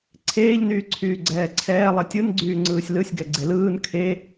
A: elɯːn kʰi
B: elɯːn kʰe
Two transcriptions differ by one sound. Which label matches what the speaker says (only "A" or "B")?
B